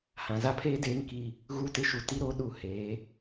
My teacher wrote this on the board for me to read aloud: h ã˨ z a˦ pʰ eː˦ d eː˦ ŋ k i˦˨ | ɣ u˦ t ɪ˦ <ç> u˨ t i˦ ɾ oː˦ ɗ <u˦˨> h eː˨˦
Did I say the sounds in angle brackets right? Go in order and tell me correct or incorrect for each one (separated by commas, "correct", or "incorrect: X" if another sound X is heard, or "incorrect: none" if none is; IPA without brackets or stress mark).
incorrect: ʃ, correct